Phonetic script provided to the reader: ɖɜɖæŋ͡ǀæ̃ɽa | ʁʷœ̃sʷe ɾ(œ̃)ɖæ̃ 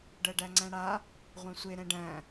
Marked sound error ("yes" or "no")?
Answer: yes